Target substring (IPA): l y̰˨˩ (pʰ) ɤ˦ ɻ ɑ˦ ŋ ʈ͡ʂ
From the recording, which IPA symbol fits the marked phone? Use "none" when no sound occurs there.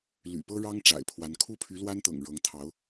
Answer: p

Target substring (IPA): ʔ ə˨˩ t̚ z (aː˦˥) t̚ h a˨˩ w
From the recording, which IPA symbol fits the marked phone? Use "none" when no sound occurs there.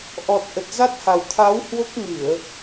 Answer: a˦˥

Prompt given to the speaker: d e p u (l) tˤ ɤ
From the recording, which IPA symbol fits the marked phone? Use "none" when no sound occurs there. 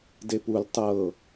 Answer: l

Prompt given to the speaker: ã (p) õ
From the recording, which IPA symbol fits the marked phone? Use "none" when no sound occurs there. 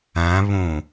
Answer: β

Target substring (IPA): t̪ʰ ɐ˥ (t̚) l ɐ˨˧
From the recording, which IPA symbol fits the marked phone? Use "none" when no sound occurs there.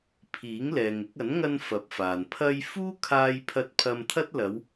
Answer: t̚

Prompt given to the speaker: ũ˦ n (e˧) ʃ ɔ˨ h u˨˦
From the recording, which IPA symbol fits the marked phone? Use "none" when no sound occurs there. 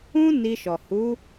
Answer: i˧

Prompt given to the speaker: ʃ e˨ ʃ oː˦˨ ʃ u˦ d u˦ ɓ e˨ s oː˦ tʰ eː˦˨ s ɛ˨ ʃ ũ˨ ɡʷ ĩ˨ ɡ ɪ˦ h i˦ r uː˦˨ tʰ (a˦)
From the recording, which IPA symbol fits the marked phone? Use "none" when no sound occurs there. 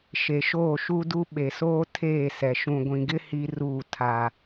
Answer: a˦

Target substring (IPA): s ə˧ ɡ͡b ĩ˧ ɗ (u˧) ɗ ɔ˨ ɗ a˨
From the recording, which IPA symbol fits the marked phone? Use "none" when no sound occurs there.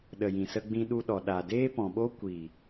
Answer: u˧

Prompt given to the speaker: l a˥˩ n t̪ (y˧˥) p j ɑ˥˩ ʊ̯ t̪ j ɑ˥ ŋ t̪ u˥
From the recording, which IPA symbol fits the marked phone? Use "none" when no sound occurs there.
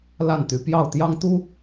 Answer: y˧˥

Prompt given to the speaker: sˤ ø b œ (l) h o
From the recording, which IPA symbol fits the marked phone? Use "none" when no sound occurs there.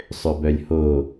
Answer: lʲ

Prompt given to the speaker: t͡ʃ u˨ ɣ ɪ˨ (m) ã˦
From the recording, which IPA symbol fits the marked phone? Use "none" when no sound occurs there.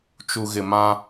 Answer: m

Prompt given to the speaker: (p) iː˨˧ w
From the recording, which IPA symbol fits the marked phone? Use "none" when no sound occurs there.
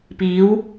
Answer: p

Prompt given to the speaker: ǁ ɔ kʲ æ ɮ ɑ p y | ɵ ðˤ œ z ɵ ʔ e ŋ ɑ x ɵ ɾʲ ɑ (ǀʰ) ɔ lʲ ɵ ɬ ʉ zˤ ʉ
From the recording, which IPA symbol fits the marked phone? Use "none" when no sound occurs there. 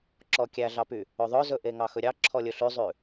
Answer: ǁʰ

